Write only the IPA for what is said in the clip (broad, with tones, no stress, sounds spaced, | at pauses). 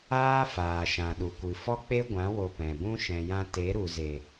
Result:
aː˦ f aː˨ ʃ ã˨ ɗ u˨ kʷ ɨ˨ f ɔ˦ k͡p e˦ ɡʷ ã˨˦ w o˧ p ɛ̃˨ b ũ˦ ʃ ɛ̃˨ j ã˧ t e˨˦ ɾ u˨ z e˨